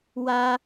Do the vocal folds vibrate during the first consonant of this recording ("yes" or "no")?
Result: yes